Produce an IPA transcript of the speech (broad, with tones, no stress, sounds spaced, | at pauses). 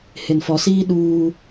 h ɪ˨ n f ɔ˨ s iː˦ ɗ uː˦